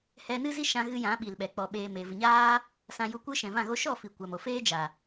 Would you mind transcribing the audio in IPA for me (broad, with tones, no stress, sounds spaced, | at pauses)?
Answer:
h ɛ˧ n ɨ˦ z i˦ ʃ ã˧ ɣ ɨ˧ j ã˨˦ ɓ i˨ l ɓ ɛ˨ k͡p ɔ˨ ɓ eː˨ m e˨ v ɨ˨ ɲ aː˦ | s ã˧ j u˧ kʷ ɨ˦ ʃ ɛ̃˨ v ã˦˨ ɣ o˦ ʃ ɔ˦˨ f i˨ kʷ a˨ m o˨ f eː˦ d͡ʒ a˨